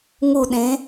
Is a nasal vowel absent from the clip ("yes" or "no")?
no